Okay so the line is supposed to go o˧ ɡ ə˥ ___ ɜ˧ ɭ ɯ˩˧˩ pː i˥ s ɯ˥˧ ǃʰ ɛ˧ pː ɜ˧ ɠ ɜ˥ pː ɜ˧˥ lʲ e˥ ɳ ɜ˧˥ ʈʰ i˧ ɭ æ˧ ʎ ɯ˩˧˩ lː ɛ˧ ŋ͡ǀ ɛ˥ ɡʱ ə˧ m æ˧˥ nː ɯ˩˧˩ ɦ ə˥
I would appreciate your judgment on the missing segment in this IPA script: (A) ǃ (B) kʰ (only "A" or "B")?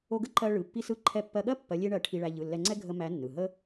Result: A